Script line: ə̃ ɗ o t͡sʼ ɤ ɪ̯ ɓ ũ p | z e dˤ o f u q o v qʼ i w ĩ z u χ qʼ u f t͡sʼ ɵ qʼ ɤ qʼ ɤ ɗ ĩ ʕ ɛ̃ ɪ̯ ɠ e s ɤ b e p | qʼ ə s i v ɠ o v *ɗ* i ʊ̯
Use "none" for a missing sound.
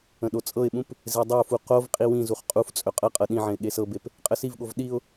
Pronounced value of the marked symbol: ɗ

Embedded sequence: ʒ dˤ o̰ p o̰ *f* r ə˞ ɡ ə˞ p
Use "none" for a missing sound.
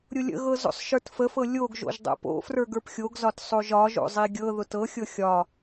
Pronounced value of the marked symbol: f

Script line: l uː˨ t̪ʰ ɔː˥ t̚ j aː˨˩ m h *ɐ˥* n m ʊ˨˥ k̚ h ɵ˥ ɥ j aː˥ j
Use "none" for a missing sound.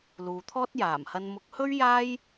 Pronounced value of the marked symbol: ɐ˧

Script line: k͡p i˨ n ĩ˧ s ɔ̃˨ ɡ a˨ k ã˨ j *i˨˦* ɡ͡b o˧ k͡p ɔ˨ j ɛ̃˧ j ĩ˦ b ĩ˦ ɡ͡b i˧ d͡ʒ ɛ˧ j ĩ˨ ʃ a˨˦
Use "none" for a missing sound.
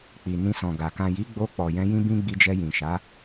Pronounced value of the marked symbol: i˨˦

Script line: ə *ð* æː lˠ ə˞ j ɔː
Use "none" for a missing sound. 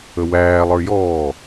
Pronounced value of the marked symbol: w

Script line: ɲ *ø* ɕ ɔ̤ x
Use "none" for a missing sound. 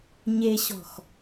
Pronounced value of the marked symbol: e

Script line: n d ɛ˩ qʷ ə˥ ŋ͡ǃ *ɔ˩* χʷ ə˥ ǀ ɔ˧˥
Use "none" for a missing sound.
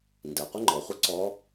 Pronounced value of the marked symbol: ɔ˩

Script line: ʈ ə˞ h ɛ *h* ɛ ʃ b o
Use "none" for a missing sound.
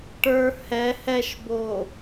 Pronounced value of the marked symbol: h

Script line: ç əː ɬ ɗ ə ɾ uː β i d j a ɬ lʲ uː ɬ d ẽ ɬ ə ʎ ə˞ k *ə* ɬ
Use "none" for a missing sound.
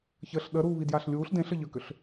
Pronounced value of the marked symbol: ʏ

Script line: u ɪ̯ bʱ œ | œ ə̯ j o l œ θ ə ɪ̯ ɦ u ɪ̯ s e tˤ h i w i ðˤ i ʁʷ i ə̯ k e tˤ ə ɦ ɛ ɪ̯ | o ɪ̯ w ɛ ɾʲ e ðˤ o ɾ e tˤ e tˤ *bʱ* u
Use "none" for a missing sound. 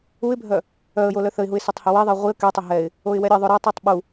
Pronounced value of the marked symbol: ɓ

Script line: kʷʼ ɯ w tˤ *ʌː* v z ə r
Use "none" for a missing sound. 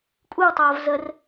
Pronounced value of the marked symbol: ʌː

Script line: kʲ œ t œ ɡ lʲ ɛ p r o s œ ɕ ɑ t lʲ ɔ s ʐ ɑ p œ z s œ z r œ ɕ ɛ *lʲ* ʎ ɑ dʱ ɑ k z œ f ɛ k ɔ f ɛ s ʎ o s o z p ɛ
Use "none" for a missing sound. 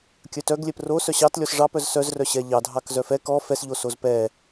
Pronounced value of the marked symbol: none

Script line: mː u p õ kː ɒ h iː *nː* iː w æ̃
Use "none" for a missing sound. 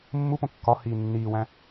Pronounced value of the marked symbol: nː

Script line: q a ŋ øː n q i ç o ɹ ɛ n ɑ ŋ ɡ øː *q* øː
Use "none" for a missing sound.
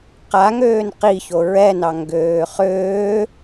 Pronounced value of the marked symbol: χ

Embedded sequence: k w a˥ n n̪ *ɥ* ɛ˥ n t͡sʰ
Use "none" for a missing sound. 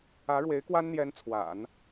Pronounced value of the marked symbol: j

